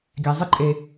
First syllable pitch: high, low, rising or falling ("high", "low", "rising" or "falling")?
low